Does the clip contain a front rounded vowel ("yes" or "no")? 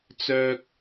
yes